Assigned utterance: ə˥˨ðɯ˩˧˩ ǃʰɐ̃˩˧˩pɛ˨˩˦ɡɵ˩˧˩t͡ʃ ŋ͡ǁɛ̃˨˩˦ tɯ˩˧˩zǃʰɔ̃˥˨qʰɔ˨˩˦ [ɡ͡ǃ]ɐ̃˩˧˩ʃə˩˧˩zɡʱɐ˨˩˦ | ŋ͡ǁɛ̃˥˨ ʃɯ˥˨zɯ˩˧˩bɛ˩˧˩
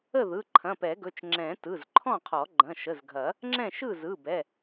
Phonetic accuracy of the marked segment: correct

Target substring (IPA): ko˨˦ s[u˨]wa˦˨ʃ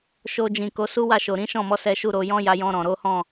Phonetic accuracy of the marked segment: incorrect: u˦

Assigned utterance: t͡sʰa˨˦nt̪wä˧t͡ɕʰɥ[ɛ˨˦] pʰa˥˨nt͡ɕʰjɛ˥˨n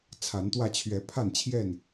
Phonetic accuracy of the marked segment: correct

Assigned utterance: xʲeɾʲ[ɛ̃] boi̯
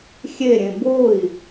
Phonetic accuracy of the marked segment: incorrect: ẽ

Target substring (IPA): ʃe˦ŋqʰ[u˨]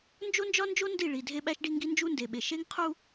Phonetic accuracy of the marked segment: incorrect: u˦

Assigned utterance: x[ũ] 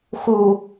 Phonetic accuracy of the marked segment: incorrect: u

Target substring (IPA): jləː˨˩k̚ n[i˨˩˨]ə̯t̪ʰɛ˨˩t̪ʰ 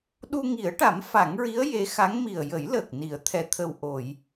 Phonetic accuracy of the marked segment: correct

